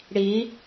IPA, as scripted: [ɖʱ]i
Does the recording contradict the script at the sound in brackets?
yes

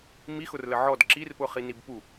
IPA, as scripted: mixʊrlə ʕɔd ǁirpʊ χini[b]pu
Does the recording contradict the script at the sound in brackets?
no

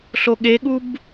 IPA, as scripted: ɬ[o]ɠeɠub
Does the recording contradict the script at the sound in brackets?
no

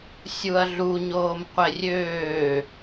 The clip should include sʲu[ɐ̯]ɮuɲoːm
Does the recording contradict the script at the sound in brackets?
no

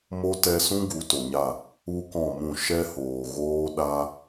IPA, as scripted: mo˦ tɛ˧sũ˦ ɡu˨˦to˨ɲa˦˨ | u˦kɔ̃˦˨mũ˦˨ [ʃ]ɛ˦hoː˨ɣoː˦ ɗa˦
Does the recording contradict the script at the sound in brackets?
no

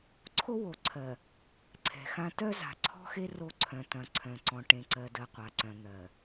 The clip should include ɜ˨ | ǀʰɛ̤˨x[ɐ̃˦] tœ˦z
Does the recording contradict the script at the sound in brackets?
yes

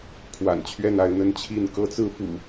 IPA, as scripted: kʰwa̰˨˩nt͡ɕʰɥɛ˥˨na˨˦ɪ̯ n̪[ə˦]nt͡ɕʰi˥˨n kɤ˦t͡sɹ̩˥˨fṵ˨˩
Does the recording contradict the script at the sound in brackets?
no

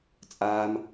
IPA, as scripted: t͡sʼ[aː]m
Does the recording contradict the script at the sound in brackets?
no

